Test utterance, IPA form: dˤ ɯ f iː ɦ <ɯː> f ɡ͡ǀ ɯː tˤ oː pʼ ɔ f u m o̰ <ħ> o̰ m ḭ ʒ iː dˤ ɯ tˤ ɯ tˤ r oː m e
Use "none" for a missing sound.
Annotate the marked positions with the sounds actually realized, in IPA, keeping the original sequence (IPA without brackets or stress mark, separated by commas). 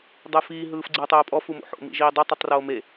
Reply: ɯː, ħ